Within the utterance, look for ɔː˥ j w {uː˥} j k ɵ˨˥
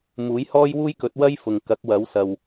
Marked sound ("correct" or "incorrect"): correct